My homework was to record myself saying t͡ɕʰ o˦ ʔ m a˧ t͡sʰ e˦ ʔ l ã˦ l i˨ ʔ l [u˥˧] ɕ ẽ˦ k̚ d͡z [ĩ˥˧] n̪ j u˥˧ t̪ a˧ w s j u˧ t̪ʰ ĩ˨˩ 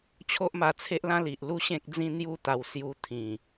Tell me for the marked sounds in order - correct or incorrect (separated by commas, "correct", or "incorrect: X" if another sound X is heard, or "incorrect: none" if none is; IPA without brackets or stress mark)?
correct, incorrect: ĩ˦